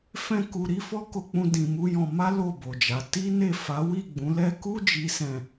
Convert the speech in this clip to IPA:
f ɛ̃˦ k u˧ ɾ i˦ f ɔ˦ k o˧ k͡p ũ˧ d ĩ˧ m u˦ j ɔ̃˧ m a˦ l o˦˨ b o˨ d͡ʒ a˨˦ t i˦ n e˦˨ f a˨˦ w i˦˨ ɡ͡b ũ˨˦ l ɛ˦ k u˦ d͡ʒ i˦ s ɛ̃˦˨

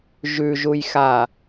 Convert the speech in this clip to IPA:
ʒ ʉ ʒ u j x a

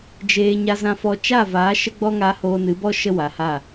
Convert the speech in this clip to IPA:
d͡ʒ eː˧ ɲ a˧ z ã˧ f ɔ˧ t͡ʃ a˦˨ v aː˨˦ ʃ ə˦ ɡ͡b ɔ˦ ŋ a˧ h oː˧ n ɨ˨˦ b ɔ˦ ʃ ə˦ w a˨ h a˦˨

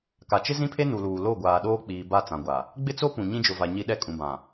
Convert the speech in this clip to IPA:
k a˨ t͡ʃ ɪ˦ z ĩ˦ pʰ e˦ n u˨ l uː˨ l o˦˨ ɡʷ aː˨ ɗ oː˦ k͡p iː˨ b a˦ t͡s ã˨ ɡʷ a˨ | ɡ͡b ɪ˦ t͡s o˦ p ũ˨ ɲ ĩ˦ d͡ʒ ʊ˨ v a˨ ɲ i˦ ɗ ɛ˦ kʼ ũ˨ b ã˨

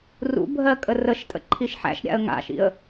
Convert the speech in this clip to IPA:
r ṵ bʱ ɜ kʼ ə r ə ʃ tʼ ə̰ ǃʰ i ʃ ħ æ̰ ʃ ɾʲ a̰ ə̯ ŋ a̰ ʃ ḭ ə̯

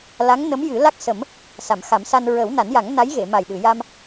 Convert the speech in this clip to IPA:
l a˧˥ ŋ n ə˧˥ m j ɨ˨˩˦ l a˦˥ k̚ s ə˨˩˦ m | s a˨˩˨ m x a˨˩˦ m s a˧ n ɹ ə˨˩˦ w n a˨˩˦ n j a˨˩˦ ŋ n a˧˥ j ɣ e˨˩˨ m a˨˩ j ɗ ɨ˨˩˨ j a˧ m

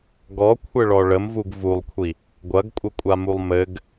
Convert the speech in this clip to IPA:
ɡ ɔ kʷʰ ɘ ɭ ɔ ɭ ə m v u ɡ v u lˠ kʷʰ i | ɡʷ ɐ ɡ kʷʼ ɘ kʷʼ a m u lˠ m ɘ ɡ

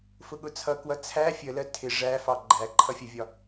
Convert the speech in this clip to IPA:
f ʊ ɠ ʊ t͡sʰ ʌ k w ʌ t͡sʰ æ fʲ ə l ɜ tʰ ɪ ʐ æ f ɑ ɡ͡ǃ æ ǃʰ ʌ fʲ ə vʲ ɒ

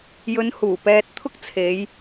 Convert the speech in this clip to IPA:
j ɵ˨˧ n h uː˨˩ p ɛː˧ t̚ t̪ʰ ʊ˥ k̚ t͡sʰ e˨˧ j

